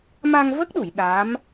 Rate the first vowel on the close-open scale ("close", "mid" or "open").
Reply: open